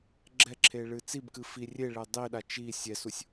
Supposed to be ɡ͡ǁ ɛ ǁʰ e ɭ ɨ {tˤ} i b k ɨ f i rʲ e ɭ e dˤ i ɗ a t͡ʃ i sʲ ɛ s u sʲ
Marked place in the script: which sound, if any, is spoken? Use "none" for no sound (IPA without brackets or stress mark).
t͡s